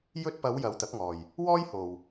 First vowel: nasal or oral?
oral